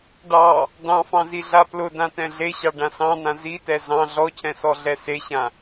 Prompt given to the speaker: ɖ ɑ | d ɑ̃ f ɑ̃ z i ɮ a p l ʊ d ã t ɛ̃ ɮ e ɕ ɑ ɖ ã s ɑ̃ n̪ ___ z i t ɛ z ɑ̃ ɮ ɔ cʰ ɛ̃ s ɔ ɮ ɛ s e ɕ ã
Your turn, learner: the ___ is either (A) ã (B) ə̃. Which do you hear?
A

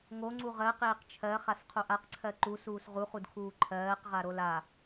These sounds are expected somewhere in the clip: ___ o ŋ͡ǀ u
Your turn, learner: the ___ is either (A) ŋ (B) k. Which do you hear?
A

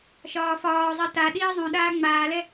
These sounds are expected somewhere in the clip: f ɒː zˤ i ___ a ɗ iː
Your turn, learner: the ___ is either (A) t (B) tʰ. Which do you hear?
A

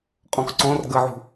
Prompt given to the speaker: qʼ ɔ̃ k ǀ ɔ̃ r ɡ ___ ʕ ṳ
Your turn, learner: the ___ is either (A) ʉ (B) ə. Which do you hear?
B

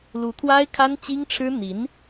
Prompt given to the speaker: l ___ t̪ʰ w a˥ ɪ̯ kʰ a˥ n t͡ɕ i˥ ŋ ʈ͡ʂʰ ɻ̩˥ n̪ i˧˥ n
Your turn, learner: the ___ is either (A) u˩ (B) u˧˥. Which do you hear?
B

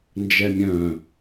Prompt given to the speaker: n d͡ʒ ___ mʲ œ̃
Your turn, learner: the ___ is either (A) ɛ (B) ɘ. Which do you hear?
A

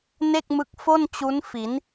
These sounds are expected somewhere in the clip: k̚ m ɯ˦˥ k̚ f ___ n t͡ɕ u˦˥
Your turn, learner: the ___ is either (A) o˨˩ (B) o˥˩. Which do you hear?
B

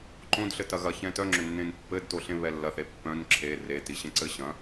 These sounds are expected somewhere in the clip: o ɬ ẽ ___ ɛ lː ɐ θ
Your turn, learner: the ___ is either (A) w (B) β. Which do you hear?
B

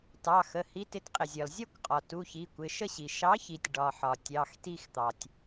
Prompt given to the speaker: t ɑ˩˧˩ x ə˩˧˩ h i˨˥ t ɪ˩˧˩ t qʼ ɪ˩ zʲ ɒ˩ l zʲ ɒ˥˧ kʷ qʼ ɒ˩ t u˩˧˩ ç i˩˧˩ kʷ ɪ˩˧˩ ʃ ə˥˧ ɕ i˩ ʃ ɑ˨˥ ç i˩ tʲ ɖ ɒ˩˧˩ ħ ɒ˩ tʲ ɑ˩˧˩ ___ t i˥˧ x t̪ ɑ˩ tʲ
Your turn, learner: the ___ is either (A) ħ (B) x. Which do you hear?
B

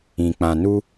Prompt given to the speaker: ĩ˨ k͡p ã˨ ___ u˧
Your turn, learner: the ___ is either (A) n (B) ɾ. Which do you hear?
A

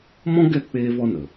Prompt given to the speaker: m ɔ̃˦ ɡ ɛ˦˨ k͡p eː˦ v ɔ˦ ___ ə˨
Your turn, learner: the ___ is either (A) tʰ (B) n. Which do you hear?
B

